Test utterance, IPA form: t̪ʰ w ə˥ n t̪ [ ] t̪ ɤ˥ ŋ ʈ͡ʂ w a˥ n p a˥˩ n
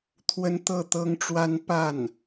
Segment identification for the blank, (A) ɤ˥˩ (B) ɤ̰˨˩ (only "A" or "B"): A